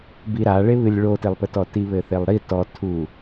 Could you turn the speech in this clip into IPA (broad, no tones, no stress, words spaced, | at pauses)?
biɾaɭeβɨlʲ ɭotelˠpɘtɔ tiβɘθelˠɾi tɔtʰu